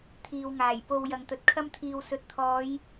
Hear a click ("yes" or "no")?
no